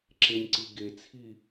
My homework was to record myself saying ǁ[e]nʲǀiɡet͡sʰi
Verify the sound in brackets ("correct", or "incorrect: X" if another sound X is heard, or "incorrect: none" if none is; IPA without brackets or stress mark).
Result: correct